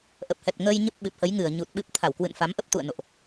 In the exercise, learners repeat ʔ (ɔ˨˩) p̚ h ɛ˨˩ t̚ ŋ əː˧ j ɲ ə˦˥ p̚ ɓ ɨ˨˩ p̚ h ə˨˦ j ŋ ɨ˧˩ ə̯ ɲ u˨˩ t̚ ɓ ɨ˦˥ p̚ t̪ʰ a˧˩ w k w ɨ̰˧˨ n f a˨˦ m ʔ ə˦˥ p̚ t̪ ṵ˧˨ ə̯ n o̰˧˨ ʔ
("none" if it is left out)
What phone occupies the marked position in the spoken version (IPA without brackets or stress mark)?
ə˨˩